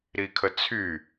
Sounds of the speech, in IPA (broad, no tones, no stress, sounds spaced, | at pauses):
ɾ i kʰ ə t͡sʰ y